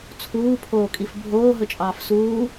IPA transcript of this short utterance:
t͡sʰ uː pʰ oː kʼ i f bʱ oː ɦ ɵ t͡ʃʼ ɑː f s uː

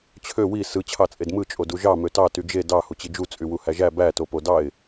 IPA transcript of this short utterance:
t͡ɕʰ ø w i s ɯ t͡ɕʰ ɑ t͡sʼ e d m ɯ t͡ʃʼ o d u ʒ ɑ m ø t ɑ t y d͡ʒ e d ɑ h u t͡ɕ i d͡ʒ u t͡sʼ y w u h æ ʒ æ b æ t o p o d ɑ ɪ̯

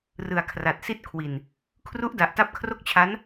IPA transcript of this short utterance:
r ɯ˨˩ a̯ kʰ r a˨˩ t̚ s i˥˩ t̚ kʰ w i˨˩ n | kʰ r u˦˥ ʔ d a˨˩ ʔ t a˦˥ p̚ kʰ r o˥˩ k̚ t͡ɕʰ a˦˥ n

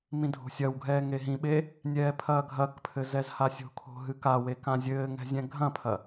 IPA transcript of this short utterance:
m ĩ dʱ o̤ sʲ ɐ w ɡʱ ɛː ŋ e ɦ ĩ ɓ e | nʲ ɛː pʰ ɐː ɡʱ ɐ k pʰ ɘ z ɛ z h a sʲ o̤ kʰ o̤ ɦ ɨ k a w e k ã zʲ ɘː ŋ ɛ̤ zʲ ɛ̃ ɡʱ ɐ̃ pʰ ɐ

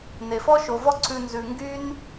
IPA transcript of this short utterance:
n e˩ f ɔ˦ ʃ o˩ v ɔ˦ ǀʰ ʉ˨ n z ʉ˩ ŋ ɡ y˦ n

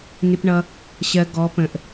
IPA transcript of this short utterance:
n ɪ˩ p ɳ ʌ˩ | ɕ ɜ˩ ɡ ɔ˩˧ p ə̃˩ ʔ

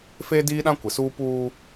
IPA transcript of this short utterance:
f eː˦ d iː˦ ɗ ã˦ kʷ ɪ˨ s uː˦ p uː˦

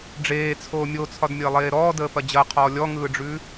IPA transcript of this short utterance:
ɖ͡ʐ eː t͡sʰ oː mʲ o t͡sʰ ɒ d mʲ əː lˠ eː ɾ ɔː d əː p ɐ d͡ʑ ɐ qʰ ɔː lʲ ɔ ŋ ɯː ɖ͡ʐ ʉ

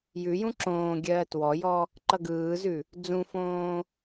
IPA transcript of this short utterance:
j ʉ j ũ ǁ õː ɡʲ ɜː t w ɔ j ɔ | ǃ ʌ ɡ ɯː z ʉ | d͡z ũ f õː

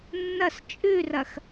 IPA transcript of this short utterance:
nː ɐ s t͡ʃʼ ʉ r ɐ x

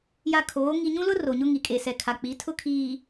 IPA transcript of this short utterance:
j a˨ kʰ oː˨˦ ŋ i˨ ɲ ũ˦ l ʊ˦ r o˨ ɲ ʊ˦ ŋ i˨ kʼ e˨ s ɛ˨ kʰ a˨ k͡p i˨˦ tʰ ʊ˦ kʰ iː˨

